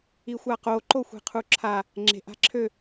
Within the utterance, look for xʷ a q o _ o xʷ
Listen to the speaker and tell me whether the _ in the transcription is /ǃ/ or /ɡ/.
ǃ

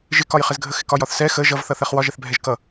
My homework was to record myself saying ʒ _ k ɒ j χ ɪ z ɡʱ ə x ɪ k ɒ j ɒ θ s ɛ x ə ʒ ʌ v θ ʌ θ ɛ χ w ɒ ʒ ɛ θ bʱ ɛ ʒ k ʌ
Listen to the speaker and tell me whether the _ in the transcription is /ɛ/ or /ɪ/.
ɪ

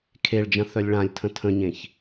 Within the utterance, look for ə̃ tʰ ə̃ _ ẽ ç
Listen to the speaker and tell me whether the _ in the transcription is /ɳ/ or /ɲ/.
ɲ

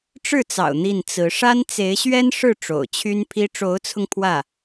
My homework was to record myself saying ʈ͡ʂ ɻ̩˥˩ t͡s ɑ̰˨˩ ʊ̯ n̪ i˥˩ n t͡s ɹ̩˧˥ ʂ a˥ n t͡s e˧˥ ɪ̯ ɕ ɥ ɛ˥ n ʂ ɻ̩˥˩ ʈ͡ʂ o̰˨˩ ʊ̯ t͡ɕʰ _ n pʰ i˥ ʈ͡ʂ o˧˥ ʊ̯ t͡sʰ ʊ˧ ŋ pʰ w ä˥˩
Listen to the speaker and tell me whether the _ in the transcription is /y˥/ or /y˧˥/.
y˥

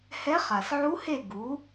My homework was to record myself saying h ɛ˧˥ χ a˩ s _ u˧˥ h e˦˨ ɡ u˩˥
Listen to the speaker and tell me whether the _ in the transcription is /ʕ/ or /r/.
ʕ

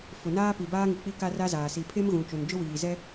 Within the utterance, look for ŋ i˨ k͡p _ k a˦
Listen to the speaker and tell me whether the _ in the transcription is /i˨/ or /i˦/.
i˦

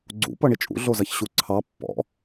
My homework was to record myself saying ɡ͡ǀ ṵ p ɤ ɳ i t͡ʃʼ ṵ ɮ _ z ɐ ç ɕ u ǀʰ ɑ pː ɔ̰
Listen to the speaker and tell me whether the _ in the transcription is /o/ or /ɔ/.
o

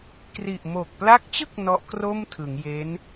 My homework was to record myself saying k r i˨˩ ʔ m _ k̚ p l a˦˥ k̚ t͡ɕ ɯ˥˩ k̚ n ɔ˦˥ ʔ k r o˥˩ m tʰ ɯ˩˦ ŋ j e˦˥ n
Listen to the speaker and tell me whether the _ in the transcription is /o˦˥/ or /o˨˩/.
o˨˩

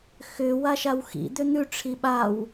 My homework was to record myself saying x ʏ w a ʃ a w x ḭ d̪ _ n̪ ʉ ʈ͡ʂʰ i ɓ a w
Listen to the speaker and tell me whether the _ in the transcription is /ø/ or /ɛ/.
ø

